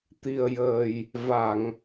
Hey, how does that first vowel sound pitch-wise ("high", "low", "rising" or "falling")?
low